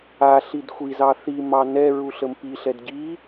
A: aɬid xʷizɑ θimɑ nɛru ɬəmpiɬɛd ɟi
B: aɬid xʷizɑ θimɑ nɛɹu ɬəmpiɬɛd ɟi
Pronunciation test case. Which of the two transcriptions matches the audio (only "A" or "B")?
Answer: B